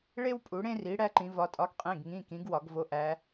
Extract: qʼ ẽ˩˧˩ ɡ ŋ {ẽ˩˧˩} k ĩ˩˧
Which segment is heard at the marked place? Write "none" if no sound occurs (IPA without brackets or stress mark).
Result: ĩ˩˧˩